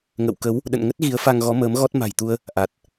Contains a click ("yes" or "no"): no